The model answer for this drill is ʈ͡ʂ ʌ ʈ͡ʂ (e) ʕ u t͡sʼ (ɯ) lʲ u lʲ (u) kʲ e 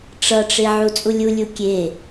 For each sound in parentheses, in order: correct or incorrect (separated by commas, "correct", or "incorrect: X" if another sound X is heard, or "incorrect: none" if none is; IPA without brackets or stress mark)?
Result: correct, incorrect: u, correct